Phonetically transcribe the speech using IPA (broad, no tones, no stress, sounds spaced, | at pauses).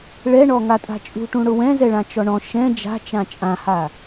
ɭ ɛ ɳ ɔ ŋ a tʼ a̤ t͡ʃʼ ṳ ʈ ũ ɽ ʊ w ɛ̃ z ɛ ɭ ã t͡ʃ ɔ ɳ ɔ̃ ʃ ɛ̃ d͡ʒ a̤ t͡ʃ ã t͡ʃʼ ã h a